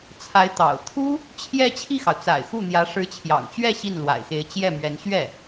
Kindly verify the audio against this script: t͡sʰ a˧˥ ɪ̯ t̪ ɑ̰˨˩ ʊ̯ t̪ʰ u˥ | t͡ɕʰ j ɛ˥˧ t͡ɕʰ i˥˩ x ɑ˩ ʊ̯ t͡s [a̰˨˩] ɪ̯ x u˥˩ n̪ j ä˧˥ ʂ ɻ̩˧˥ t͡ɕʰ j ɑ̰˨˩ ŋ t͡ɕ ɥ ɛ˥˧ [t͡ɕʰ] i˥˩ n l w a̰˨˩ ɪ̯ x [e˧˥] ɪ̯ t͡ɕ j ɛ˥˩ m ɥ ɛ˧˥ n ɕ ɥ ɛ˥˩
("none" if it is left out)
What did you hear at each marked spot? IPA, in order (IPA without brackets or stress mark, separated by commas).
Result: a̰˨˩, ɕ, e˧˥